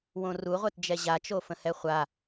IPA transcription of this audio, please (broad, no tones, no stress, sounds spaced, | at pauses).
w õ r u ʁʷ ɛ t d͡ʒ ɛ ʑ a t͡ʃ o f ə̃ h ɛ χʷ a